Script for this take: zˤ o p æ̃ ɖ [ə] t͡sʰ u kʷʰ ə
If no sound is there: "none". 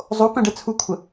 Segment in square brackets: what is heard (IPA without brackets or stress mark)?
ɛ